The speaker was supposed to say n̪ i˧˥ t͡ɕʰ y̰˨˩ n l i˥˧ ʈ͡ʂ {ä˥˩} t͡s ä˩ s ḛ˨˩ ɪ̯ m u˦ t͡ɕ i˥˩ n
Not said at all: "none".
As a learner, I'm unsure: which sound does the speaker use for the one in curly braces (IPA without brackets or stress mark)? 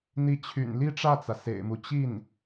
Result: ä˥˩